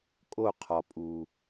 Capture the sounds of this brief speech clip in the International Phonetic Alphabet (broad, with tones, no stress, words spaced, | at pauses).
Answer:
kʼo˦˨qʰɒ˨ pʼu˨